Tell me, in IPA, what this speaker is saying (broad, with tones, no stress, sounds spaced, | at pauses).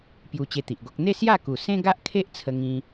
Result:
p j u˧ t͡ɕ e˧ t̪ i˨ ʔ ɡ o˦ k̚ n̪ e˥˧ s j a˥˧ k u˨˩ s ẽ˦ ɡ a˦ ʔ kʰ e˦ ʔ t͡sʰ ə˧ ŋ ĩ˧